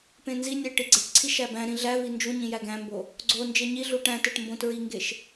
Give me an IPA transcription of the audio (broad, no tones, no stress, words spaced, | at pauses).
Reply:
pẽnzinʲæ ʈiɡ͡ǀeʈǀʰi ʃæbæ̃ɾĩ ɮævi nd͡ʒuɲĩ jæɡæ̃mbo | ɡ͡ǀond͡ʒe ɲi ɮuʈæ̃teʈ mbõtɹiŋɡeʃ